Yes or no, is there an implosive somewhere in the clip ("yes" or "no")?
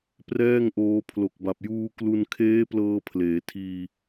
no